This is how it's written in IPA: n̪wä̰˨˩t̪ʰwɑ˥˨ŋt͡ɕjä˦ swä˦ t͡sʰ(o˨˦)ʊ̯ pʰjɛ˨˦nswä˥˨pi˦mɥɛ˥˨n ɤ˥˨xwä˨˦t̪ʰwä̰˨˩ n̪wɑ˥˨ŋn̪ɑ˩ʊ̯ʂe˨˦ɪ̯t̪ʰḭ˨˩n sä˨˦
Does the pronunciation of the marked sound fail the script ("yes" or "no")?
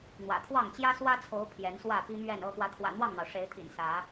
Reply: no